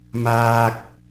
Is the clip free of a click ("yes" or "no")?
yes